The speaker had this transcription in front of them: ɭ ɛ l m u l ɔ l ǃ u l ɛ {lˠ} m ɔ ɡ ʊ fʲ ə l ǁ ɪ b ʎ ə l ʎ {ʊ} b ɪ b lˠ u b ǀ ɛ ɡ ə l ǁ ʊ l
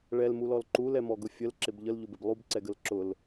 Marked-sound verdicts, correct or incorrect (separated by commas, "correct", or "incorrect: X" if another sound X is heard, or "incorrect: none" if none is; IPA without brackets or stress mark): incorrect: none, correct